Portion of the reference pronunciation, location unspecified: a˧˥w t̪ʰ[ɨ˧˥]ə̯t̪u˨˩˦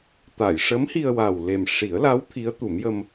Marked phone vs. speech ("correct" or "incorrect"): incorrect